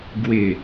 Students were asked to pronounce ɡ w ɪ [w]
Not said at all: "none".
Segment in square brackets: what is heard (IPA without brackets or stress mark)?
none